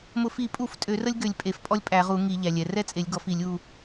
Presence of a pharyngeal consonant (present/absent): absent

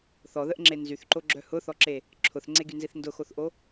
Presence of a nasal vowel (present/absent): absent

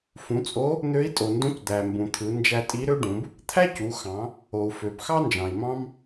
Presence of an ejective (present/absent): present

